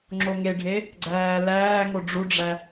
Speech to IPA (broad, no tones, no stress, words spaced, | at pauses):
ŋ͡ǁoŋeɖʱe | ɡ͡ǀæːlæːŋo ɖ͡ʐuɖ͡ʐæ